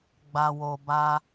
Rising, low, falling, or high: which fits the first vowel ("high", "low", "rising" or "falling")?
low